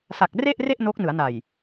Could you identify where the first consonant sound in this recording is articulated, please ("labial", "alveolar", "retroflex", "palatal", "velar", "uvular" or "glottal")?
alveolar